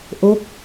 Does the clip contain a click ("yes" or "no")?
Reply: no